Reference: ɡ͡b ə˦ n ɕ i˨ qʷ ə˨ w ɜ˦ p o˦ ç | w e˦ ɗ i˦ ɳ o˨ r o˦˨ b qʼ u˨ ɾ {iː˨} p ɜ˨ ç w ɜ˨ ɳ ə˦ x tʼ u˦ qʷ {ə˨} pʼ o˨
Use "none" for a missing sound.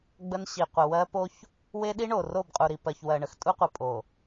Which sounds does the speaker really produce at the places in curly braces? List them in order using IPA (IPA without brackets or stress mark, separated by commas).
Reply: i˨, ə˨